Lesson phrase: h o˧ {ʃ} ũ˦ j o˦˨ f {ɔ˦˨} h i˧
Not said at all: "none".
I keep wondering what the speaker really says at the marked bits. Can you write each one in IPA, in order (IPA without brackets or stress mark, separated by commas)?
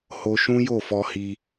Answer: ʃ, ɔ˧